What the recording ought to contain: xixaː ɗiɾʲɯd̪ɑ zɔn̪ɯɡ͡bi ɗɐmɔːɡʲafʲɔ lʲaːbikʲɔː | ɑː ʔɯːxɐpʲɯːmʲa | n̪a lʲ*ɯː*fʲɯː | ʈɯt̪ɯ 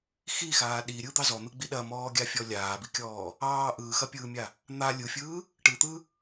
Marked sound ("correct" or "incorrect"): incorrect